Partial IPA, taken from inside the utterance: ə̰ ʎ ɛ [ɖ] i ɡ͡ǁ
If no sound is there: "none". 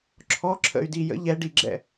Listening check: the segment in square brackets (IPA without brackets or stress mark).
ɖ